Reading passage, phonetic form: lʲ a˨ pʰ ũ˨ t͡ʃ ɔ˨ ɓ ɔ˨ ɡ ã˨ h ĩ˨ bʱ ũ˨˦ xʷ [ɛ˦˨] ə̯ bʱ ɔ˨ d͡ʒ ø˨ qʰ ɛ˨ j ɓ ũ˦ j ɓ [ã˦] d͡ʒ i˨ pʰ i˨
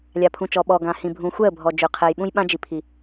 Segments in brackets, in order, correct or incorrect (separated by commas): correct, correct